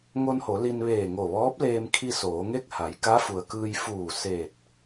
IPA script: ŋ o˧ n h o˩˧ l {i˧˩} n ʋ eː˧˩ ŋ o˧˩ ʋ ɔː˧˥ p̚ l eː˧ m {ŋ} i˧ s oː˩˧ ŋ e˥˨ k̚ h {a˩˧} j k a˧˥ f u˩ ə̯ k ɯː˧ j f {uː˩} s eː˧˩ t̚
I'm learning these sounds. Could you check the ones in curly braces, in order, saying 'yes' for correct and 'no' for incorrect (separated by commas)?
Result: no, no, yes, no